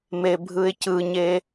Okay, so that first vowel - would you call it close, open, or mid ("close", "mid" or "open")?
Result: mid